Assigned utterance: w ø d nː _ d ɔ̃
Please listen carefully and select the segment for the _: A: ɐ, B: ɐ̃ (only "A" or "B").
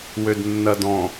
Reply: A